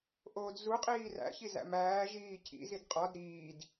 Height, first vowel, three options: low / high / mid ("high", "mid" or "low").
mid